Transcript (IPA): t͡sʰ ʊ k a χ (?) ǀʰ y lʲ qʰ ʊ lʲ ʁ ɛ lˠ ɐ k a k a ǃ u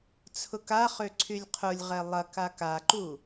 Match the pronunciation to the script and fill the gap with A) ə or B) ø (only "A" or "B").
B